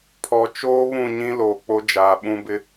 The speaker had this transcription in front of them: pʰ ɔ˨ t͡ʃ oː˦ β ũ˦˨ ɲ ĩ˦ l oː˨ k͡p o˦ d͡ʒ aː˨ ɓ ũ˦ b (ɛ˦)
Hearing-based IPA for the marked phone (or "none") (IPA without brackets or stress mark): ɪ˦